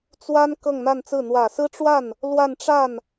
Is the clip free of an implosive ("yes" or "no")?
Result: yes